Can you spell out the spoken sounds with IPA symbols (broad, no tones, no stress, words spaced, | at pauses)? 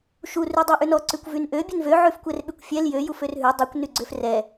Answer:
ʃu rʉdˤʉʔʉnɔ ǀʉkʷvynʔø bʲʉnvø ʕʉfkʷɛrɓykʷfʲɛl jø juførɦʉ dˤukʷ nyɡ͡ǀøfrɛ